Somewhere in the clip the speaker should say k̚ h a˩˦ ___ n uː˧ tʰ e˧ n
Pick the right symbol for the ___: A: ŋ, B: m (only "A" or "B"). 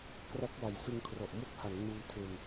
A